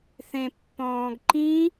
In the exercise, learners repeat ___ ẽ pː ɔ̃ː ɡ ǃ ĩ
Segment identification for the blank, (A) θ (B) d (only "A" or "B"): A